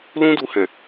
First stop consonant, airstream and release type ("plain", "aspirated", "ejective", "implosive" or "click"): plain